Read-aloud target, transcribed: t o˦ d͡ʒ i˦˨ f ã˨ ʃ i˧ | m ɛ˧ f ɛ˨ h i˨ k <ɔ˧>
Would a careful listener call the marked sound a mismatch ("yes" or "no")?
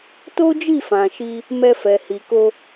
yes